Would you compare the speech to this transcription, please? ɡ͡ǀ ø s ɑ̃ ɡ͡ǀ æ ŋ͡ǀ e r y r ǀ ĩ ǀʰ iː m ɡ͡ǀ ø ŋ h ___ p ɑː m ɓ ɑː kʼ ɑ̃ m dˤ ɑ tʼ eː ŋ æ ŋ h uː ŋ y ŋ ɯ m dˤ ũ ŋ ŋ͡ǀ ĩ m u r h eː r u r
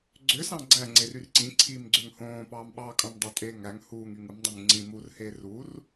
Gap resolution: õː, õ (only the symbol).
õː